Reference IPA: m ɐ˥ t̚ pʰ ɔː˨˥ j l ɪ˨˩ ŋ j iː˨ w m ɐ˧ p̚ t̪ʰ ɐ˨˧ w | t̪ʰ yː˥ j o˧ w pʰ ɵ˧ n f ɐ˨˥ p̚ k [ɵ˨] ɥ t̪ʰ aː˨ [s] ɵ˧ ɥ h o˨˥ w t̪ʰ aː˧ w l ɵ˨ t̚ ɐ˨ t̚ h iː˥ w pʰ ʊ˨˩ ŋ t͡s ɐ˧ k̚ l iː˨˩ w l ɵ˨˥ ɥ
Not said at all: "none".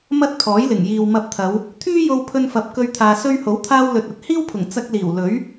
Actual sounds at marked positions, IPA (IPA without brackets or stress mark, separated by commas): ɵ˧, s